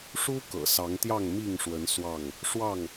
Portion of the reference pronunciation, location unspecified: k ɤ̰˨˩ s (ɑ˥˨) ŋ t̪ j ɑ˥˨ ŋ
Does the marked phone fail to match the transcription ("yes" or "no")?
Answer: yes